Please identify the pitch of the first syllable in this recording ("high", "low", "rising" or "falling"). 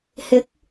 rising